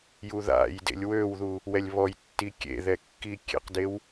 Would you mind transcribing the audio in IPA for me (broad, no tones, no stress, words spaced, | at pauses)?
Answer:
juða̰jdḛlʲ wøwðu | wɛlʲβɔjtːi kʲḛ ðɛkːikʲḛqdew